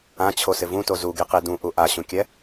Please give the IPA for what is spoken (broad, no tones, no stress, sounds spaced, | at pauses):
ã t͡ɕʰ o s ɪ v ũ t o z u ɡ i q i d ũ ʔ u ʔ a ɕ ũ kʲ ɛ